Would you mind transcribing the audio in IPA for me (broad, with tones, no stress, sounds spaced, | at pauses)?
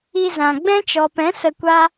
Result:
i˧ z ã˨ ɡ͡b ɛ̃˦ t͡ʃ ɔ˨ p ɛ̃˨˦ s ə˧ kʷ a˦